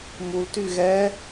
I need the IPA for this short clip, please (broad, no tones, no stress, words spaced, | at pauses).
multy ɣɛ